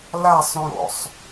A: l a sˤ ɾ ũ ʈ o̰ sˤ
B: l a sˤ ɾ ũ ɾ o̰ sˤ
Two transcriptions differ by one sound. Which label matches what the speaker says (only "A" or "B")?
B